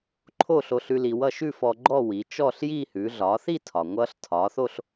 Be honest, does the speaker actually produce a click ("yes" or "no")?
yes